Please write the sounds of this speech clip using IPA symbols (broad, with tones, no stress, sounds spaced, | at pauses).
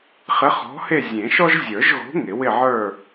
χ ɪ˨˥ χ ɔ̤˨˥ h e˦˨ zʲ ẽ˨˩˦ ʃ ɔ˦ ʒ zʲ ə˞˨˩˦ ʒ ɣ o̤˨˥ ŋ ɪ˨˩˦ w ɪ˦˨ ʕ ə˞˦˨